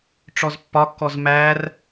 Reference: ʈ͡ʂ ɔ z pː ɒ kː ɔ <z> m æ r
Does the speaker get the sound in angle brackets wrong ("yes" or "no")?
no